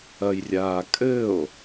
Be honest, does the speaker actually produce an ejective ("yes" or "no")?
yes